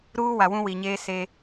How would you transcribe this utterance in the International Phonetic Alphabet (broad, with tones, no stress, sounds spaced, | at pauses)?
ɾ uː˦ w a˨ w ũ˦ w i˨ ɲ eː˦ s e˦